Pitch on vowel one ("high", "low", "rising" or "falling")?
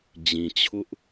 low